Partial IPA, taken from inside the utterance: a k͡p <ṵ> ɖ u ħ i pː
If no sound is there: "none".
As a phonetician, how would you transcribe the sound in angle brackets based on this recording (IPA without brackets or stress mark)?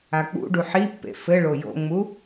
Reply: ṵ